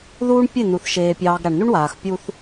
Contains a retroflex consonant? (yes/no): yes